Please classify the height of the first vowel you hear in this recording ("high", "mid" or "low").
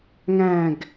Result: low